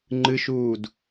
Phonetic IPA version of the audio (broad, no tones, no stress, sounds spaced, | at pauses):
ŋ͡ǃ ɨ ʃ uː d